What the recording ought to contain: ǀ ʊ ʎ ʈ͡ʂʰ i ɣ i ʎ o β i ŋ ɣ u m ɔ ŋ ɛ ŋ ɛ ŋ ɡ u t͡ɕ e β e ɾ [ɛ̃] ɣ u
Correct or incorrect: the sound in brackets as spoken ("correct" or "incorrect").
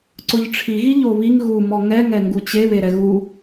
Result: incorrect